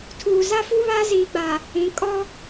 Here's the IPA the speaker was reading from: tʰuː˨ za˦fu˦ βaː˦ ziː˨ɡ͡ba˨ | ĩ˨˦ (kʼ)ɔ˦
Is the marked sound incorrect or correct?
correct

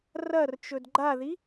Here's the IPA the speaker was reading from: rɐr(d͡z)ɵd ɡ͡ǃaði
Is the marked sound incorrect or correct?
incorrect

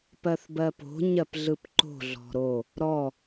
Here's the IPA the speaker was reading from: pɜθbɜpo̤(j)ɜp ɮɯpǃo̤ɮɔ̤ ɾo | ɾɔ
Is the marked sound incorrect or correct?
incorrect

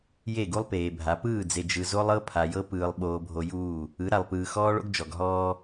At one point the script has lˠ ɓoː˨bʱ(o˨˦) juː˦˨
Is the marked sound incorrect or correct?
incorrect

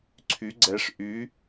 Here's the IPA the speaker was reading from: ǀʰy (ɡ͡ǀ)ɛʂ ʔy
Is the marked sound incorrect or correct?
correct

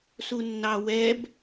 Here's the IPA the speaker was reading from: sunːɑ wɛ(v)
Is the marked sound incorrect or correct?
incorrect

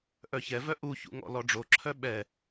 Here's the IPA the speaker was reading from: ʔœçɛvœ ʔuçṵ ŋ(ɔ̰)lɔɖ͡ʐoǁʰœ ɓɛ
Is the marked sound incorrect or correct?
correct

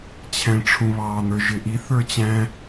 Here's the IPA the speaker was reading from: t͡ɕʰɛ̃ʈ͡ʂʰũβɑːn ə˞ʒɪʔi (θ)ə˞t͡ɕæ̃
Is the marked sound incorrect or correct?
correct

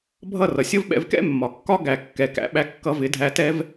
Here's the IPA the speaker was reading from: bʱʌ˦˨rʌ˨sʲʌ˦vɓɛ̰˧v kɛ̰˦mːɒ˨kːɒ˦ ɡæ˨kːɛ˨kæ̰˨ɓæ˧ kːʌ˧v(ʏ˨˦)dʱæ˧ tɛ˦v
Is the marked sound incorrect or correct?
incorrect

